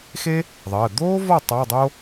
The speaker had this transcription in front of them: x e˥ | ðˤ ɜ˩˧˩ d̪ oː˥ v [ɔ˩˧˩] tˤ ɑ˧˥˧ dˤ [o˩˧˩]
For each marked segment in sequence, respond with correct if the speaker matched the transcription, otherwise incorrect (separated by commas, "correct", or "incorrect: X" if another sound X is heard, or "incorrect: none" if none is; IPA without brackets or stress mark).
incorrect: ɔ˥˨, incorrect: o˥